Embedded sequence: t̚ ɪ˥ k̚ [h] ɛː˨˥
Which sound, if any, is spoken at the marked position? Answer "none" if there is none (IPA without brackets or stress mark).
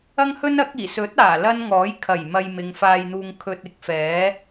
f